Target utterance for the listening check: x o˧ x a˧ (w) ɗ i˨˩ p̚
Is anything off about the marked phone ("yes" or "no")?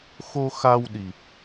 no